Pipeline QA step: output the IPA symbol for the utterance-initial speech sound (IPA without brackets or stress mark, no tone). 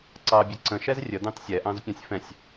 ǀ